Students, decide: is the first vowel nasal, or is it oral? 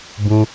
nasal